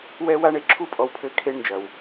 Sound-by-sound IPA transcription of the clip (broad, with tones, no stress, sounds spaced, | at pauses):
w ɛ˧ w a˧ ɳ e˨ ǁʰ u˧ pʼ ɔ˨ w pʰ ɘ˨˦ kʰ e˧ ɳ n d͡ʒ ɐ˨ w